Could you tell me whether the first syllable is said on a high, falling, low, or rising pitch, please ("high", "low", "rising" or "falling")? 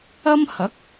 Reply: high